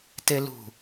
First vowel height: mid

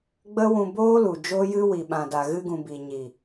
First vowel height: mid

